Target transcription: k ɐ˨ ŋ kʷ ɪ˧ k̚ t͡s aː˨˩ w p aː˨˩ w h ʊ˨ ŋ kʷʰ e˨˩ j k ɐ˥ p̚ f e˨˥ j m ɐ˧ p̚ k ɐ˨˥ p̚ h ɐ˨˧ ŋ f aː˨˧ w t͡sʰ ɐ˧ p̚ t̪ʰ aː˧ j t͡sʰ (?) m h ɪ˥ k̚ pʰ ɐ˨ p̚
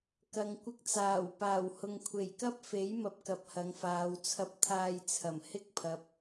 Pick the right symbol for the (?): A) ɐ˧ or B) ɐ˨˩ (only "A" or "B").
B